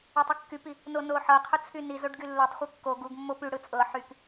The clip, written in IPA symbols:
ɵ tˤ y kː y p i | n o n o ħ ɤ qʰ u t͡sʰ y n i z o ɖ ɡ y lː o tˤ χʷ ɤ kː o ɡ u ɡ mː o p y ɽ ɯ t͡sʼ ɤ ħ y k

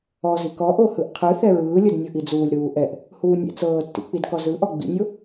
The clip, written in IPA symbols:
ɔ z i k ɔ ʔ o h ɯ ʔ qʰ ɯ θ ɛ ɹ ɯː lʲ ɤ d nʲ ɤ ʔ i d͡z uː lʲ ɾ uː ʔ ɛ ʔ | h uː nʲ ɛ̰ t͡s ɤː tː ḭ k͡p i d k ɔ z ɯ ʔ ɔ ɡ͡b ḭ nʲ o

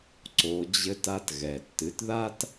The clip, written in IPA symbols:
ǀ o˩˧ d͡ʑ ɘ˧ t a˧ t ɣ ɛ˩ tː ɨ˩˥ t ð a˥ t

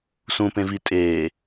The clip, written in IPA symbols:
s ũ p ẽ v i tʼ eː

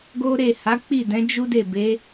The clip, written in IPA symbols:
ɡ o˦ ɾ e˦˨ h a˨˦ k͡p i˦˨ d ɛ̃˨˦ d͡ʒ u˦ d e˦˨ b e˨˦

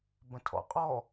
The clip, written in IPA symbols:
b ə̃ tʰ ɔ̰ qʼ ɔ

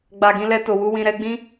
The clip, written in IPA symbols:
ɡ͡b a˨ ɡ ĩ˧ l ɛ˧ t o˨ w u˧ w ĩ˨ ɾ ɛ˧ ɡ͡b ĩ˦

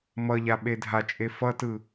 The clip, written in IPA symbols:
m ʌ ʎ a ɓ e dʱ a t͡ʃʼ e f ʌ t ɯ

